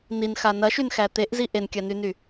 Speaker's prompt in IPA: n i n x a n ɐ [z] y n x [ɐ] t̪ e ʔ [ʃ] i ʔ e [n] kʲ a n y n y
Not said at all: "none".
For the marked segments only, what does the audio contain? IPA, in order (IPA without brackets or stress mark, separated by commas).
ʃ, æ, z, n